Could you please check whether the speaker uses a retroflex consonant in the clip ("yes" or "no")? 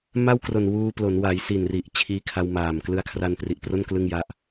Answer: no